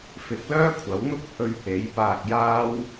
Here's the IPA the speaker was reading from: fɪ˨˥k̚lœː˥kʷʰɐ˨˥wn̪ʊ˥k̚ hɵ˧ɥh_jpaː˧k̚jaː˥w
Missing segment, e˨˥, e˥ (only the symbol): e˨˥